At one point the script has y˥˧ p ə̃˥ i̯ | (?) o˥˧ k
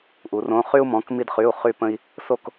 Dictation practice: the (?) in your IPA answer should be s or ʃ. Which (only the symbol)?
s